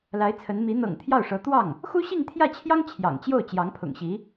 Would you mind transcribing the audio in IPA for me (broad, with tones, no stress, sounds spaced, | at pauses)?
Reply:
l a˧˥ ɪ̯ t͡sʰ ə˧˥ n m i˧˥ n̪ ɤ̰˨˩ ŋ t̪ʰ j ɑ˥˩ ʊ̯ ʂ ɤ˧˥ t̪ w ɑ˥˩ ŋ | x u˥ ɕ i˥˧ ŋ t̪ʰ j ä˥˩ t͡ɕʰ j ɑ˥ ŋ t͡ɕʰ j ɑ̰˨˩ ŋ t͡ɕ j o˥˩ ʊ̯ t͡ɕ j ɑ˧˥ ŋ pʰ ʊ̰˨˩ ŋ ɕ i˧˥